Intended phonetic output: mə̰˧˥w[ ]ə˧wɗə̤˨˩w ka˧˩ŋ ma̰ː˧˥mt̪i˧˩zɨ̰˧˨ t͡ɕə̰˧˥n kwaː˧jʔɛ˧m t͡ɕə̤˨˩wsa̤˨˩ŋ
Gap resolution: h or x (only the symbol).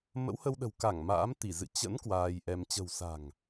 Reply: h